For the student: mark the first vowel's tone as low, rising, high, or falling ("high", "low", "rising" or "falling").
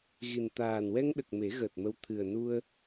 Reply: low